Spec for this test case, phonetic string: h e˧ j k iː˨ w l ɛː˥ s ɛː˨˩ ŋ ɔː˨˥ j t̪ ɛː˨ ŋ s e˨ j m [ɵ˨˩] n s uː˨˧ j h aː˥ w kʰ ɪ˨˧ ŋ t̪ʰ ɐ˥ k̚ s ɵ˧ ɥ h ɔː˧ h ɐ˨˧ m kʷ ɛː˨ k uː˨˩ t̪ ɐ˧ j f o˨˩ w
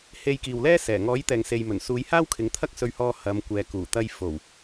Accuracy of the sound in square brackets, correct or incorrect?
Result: correct